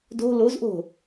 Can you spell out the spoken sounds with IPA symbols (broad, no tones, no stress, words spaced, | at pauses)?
do̤ lozʔo̤